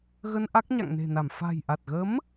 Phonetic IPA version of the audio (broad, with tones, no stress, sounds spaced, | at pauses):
ɣ ə˧ n ʔ a˦˥ k̚ ɲ a̰˧˨ ŋ n e̤˨˩ n a˧˩ m f a̤˨˩ j ʔ a˨˩ t̚ ɣ ə˨˦ m